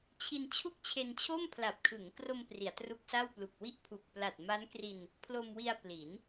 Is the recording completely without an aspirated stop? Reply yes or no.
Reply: no